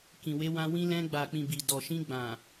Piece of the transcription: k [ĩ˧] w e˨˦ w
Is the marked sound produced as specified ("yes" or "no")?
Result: no